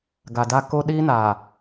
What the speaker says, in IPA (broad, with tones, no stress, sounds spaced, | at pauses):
ɡ a˨ d a˦ k o˦ ɗ iː˦ n aː˨